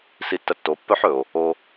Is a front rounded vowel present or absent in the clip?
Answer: present